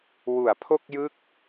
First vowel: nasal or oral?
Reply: oral